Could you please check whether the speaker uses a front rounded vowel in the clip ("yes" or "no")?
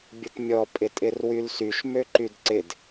yes